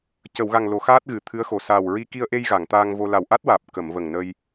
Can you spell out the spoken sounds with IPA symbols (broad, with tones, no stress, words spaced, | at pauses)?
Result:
cə˨˩˨wɣa˨˩ŋ lo˨˩˦xaː˦˥t̚ ɣɨ˨˩˨t̪ʰɨ˧˥ə̯xo˨˩ saː˨˩wɹi˧ ki˧ə̯ʔe˧j ɣa˨˩˨ŋt̪aː˧ŋvo˧ la˨˩wʔa˦˥t̚waː˨˩p̚ kə˨˩˨m və˨˩ŋnə˧j